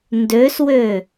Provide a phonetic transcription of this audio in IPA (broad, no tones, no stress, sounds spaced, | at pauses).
n d ø s w ø